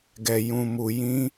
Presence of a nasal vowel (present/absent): present